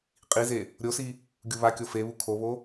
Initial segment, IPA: qʼ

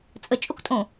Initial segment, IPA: t͡sʼ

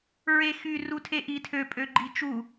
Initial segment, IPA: ɹ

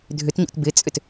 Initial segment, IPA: dʱ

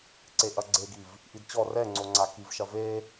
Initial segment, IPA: ǀ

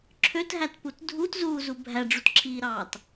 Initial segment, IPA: ǁʰ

